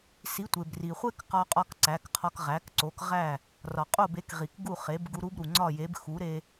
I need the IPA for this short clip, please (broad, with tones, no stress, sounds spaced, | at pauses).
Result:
s i˩˥ tʷ e˩ b r i˩ χʷ e˥ k q ɒ˧ qʼ ɒ˧ k ǀ æ˩˥ k qʰ ɒ˧ k ʁ æ˩˥ k ǀ o˩˥ k ʁ æ˥˩ | r ɒ˩ qʼ o˥˩ b e˩˥ k ʁ i˩ k ɡ u˥˩ χ e˩˥ b ɡ u˧ ɾ u˥ b ɾ u˩ ŋ͡ǀ ɒ˥˩ j e˩˥ b x u˩˥ ɾ e˧